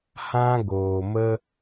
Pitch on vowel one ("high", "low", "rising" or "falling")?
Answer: high